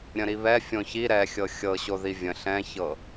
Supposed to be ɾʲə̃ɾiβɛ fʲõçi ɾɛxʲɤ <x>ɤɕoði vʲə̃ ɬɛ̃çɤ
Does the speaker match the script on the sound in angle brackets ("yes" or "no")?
no